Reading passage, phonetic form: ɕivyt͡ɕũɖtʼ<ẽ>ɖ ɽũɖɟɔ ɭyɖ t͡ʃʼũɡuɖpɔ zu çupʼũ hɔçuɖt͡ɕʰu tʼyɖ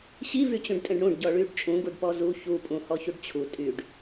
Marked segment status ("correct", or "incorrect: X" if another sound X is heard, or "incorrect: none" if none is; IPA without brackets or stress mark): correct